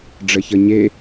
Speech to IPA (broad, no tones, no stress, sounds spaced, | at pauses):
ɖ͡ʐ ə ç ə ɲ e